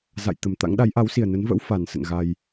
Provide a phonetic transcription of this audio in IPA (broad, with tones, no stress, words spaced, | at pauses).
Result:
za̰˧˨j t̪ə˨˩mt̪a̰˧˥ŋ ɗa˨˦jʔa˨˦wsi˨˩ə̯ nə˨˦nvə̰˧˥w fa˨˩nsə̰˧˨nɣa˧j